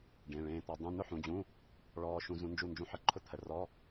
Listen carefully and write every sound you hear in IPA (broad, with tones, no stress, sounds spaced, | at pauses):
ɖ ẽ˩˧˩ ɭ ẽː˧ t̪ ɔ˧ dˤ ũ˧˥˧ n ʊ˥˧ ħ ũ˩˧˩ d͡ʑ ũ˧˥˧ | ɭ ɔː˧ ʃ ũ˧ z ũ˧ n d͡ʒ u˧˩ n d͡ʒ ũ˧ ħ ə˧˩˧ ǃʰ ʊ˧˥˧ t̪ʰ ə˩˧˩ r ɔ˧˥˧